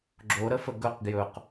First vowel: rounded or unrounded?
rounded